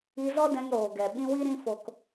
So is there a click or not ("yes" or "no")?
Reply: no